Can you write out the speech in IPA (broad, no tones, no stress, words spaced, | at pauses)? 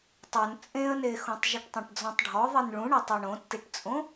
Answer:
tˤon t͡sʼẽə̯nexõtˤ ʒʏʈtˤẽʈd͡zɔ̃tˤɖʱɔ ðˤinɭũɳɛ tˤuɳõtːiʈt͡sʼõ